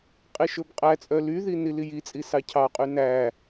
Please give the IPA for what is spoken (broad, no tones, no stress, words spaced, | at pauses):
qʼiʃɵbqʼæt͡sʼœ lyði nilijit͡sʼi sɑcʰɑqʼy næ